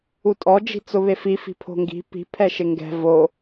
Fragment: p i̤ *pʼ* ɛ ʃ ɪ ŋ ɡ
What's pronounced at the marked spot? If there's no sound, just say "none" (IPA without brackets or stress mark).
pʰ